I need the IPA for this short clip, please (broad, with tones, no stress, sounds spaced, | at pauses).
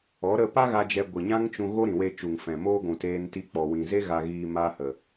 ɔ˨˦ ɾ ə˧ p a˦ ɣ a˧ d͡ʒ ɛ˧ ɡʷ ɨ˨ ɲ ã˦ ŋ t͡ʃ ũ˧ ɣ o˦ ɾ ĩ˨ w e˧ t͡ʃ u˨ ŋ f ɛ̃˨ m oː˦ ɡʷ ũ˨ t eː˧ n t i˧ k͡p ɔ˨ w ĩ˨ z e˦ ɣ a˧ ɣ iː˧ m a˧ h ə˨